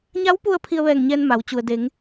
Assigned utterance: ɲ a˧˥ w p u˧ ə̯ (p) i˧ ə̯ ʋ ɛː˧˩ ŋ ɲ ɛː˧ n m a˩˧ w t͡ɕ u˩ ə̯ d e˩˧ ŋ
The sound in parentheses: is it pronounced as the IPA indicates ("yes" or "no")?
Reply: no